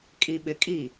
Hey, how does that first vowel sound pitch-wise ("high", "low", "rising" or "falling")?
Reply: low